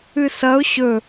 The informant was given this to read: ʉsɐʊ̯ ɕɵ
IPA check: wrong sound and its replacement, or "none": ʉ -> ɨ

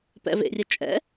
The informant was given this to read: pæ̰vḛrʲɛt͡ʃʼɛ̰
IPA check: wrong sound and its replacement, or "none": æ̰ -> ɛ̰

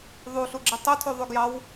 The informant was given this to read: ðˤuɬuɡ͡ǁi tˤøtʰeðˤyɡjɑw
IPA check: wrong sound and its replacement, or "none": e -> y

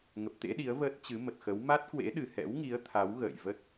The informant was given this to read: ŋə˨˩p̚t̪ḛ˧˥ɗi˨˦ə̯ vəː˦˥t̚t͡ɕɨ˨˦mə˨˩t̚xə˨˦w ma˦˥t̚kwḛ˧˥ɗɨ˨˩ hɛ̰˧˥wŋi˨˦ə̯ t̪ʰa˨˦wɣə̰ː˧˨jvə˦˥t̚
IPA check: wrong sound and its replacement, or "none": none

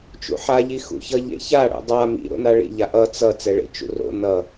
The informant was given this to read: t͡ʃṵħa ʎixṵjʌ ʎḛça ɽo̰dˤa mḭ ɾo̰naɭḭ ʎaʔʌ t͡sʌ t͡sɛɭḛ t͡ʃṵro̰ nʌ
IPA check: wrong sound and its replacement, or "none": j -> ç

